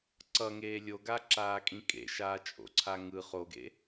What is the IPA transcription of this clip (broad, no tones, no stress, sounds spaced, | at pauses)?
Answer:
ǀ ʌ ŋ eː lʲ o ɡ a ǁ aː kʼ ĩ kʼ ḛ ʃ aː t͡ʃʼ o̰ ǀʰ a ŋ ɯ χ o ɡ ḛ